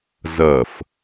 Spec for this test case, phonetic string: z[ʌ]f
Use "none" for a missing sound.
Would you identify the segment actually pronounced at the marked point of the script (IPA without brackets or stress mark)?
ʌ